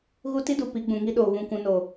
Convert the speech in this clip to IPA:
ɣ u˦ t i˦ d u˨ p i˨˦ ɡ͡b ũ˨ ŋ i˦ ɗ oː˨ β ũ˦˨ kʷ ũ˨˦ n o˨

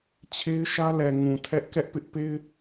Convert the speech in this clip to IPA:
t͡ɕʰ e˦ ɪ̯ ʃ ä˦ l ɛ˨ ŋ ũ˨ tʰ ɛ˦ ʔ k ɛ˦ ʔ p ɪ˦ ʔ p e˦ ɪ̯

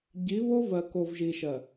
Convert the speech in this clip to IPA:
ɟ i˨˦ β o˦ v ɜ˨ k o˨ v ʒ i˨ ʃ ɜ˨

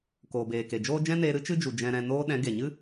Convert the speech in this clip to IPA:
k oː˨ b eː˨ k e˨ d͡ʒ oː˦ d͡ʒ ɛ̃˦ n eː˧ ɾ ɨ˦ t͡ʃ ɨ˦ d͡ʒ u˨ d͡ʒ ɛ̃˨ ɾ ɛ̃˨ n oː˧ ɗ ɛ̃˨˦ ɡ e˨ ɲ ɨ˦

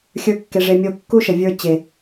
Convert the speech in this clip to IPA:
xʲ ə˞˦ kː e˧ ʐ e˧ mʲ o˦˨ kː u˦ ʃ ə˨ vʲ ə˞˧ t͡ɕ e˨

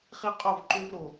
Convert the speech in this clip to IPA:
χ i˦ qʼ o˦˨ v ǃ ʏ˦ v ɾ o˨

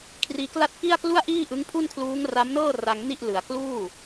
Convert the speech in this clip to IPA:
kʰ r iː˧ k l a˥˩ t̚ k i˥˩ a̯ k l u˥˩ a̯ ʔ iː˥˩ ʔ ɯ˦˥ ŋ pʰ u˥˩ n kʰ l uː˦˥ ŋ r a˦˥ m n ɤː˥˩ r a˧ ŋ n i˥˩ ʔ l ɯ˩˦ a̯ k l uː˥˩

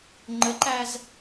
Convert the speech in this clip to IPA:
ŋ͡ǃ ə ǃ æ z

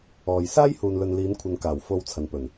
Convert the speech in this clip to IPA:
ɔː˨ j s aː˥ j h uː˨ n l ɵ˨ n l iː˨˧ n kʷʰ ɐ˨ n k aː˨˩ w f o˧ w t͡sʰ ɐ˨ n p ɵ˨˩ n

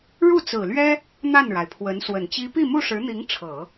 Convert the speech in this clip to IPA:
ɻ u˥˩ t͡s ɹ̩˨˩ l ɥ ɛ˥ | n̪ a˥˩ n ɻ a˩ ɪ̯ pʰ w ə˧˥ n s w ə˨˩ n t͡ɕ i˥ p i˥˧ m u˥˩ ʂ ɻ̩˧˥ n̪ i˧˥ ŋ ʈ͡ʂʰ ɤ˨˩˦

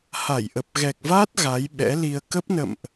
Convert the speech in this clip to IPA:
h a˧˩ j ʔ ə˨˩ p̚ ɣ ɛ˨˩ k̚ v aː˦˥ t̚ ɣ a˨˦ j ɓ ɛ̰˧˥ l i˧ ə̯ k ə˦˥ p̚ n ə̰˧˨ m ʔ

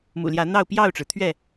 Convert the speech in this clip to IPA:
m ṵ˨˩ l j ä˨˦ n̪ ɑ˥˨ ʊ̯ p j ɑ˥˨ ʊ̯ ʈ͡ʂ ɻ̩˩ t̪ʰ ɥ ɛ˥˨

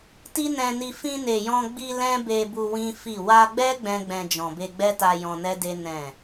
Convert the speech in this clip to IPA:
t i˦ n ɛ̃˧ n i˧ f ĩ˧ n e˨ j ɔ̃˧ ɡ͡b i˧ l ɛ̃˦ b e˧ b u˧ w ĩ˦ f i˦˨ w a˧ ɡ͡b ɛ˦ ɡ͡b ɛ̃˦ ɡ͡b ɛ̃˧ d͡ʒ ɔ̃˨ b e˧ ɡ͡b ɛ˦ t a˧ j ɔ̃˧ n ɛ˦ d e˦ n ɛ̃˦˨

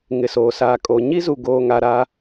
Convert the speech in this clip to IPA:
ŋ ɪ˨ s oː˨ s aː˨ kʼ o˨ ɲ i˦ z u˨ ɡ oː˨ ŋ a˨ ɾ a˦

